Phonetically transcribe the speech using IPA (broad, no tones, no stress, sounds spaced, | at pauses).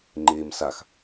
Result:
ŋ͡ǃ eː m s a x